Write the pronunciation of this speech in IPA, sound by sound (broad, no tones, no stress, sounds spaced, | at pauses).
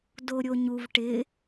d o ɾʲ o ɲ u v ʈ ɪ